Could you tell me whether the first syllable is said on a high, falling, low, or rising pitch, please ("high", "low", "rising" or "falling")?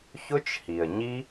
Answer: high